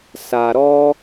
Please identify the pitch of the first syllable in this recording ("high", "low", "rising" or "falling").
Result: low